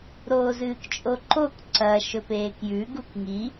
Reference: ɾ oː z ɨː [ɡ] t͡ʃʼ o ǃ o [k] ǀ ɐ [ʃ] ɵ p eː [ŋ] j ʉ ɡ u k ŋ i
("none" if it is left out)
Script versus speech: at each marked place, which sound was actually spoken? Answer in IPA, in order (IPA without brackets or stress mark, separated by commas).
k, k, ʃ, k